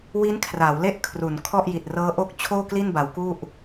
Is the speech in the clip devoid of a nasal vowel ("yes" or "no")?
yes